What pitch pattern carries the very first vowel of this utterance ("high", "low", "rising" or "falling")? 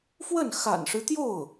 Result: falling